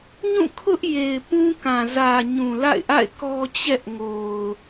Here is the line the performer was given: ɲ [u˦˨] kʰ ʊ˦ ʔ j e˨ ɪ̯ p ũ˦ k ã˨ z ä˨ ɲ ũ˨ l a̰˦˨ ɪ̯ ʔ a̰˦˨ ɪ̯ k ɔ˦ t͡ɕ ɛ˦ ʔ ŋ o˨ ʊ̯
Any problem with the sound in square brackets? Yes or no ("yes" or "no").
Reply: yes